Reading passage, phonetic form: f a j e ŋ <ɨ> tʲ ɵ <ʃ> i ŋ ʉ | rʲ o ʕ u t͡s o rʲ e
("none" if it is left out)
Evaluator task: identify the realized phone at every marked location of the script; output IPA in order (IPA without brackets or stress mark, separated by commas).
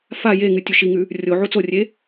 ɨ, ʃ